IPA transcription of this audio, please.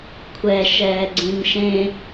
kʷʰɛʃɛːɡ͡ǀĩn ʃẽ

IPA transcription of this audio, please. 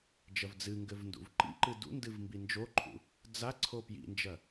d͡ʒɐvd͡zɨŋɡɘv ndṵvǃḭǃɨ dṵndɨv mbind͡ʒoǃʰṵ | d͡za ǀʰopjḭnd͡ʒɐ

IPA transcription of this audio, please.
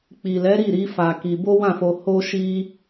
k͡pi˨lɛ˨˦ ɾi˦˨ɾi˨˦ fa˧ki˧ bo˦wã˦˨fo˧ ho˦ʃi˦

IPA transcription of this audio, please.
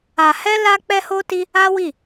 a˧hɛ˦ la˦k͡pɛ˦ho˦ti˦ | a˦wi˦˨

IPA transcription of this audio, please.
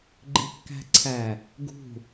ɡ͡ǃikːæ̤ǀʰæ | ɡṳ

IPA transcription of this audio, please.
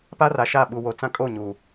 pa˦ra˨ʃa˦˨ɓu˨ wo˨t͡sã˦kʼo˦˨ ɲu˨

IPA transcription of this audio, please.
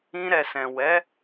ĩ˧ɾɛ˨sɛ̃˨ wɛ˨˦

